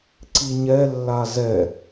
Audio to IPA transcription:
ǀ i ɲ ɛ lː a z ɛ

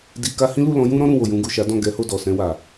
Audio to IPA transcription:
d i˧ k a˦ h ĩ˦ l u˦˨ l ɔ̃˨˦ j ũ˦ ɾ ɔ̃˦ ɾ ũ˦˨ w o˨ j ũ˧ ɡ u˨ ʃ a˨˦ d ɔ̃˦˨ ɡ ɛ˨˦ h o˦˨ d ɔ˨ s ɛ̃˧ w a˨

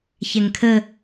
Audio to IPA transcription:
ç ɛ ŋ kʰ ə

